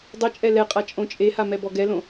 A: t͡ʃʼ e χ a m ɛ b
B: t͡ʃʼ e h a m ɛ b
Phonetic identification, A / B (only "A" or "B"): B